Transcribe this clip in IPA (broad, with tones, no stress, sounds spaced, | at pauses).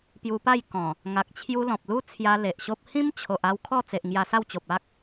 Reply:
p j u˧ p a˥˧ j k ɔ̃˨˩ | ŋ a˨ k̚ t͡ɕʰ j u˧ l ɔ̃˨ p̚ l u˦ t͡sʰ j a˧ l e˨ ʔ ɕ o˦ p̚ h ĩ˦ m t͡ɕʰ o˨ ʔ a˥˧ w kʰ ɔ˥˧ t͡s e˨ ʔ ŋ j a˧ s a˥˧ w t͡ɕ o˨ p̚ a˦ k̚